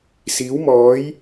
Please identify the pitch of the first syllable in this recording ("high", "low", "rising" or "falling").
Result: rising